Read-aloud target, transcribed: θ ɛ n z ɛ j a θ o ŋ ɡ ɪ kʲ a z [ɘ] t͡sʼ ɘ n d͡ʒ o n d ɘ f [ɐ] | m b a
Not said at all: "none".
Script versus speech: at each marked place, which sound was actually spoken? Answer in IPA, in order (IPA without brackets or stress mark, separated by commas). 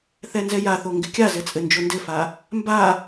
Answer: ɘ, a